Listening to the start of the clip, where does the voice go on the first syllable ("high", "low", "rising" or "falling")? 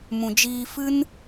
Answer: low